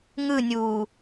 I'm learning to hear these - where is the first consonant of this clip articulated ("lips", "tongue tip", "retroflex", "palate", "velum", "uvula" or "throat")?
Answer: velum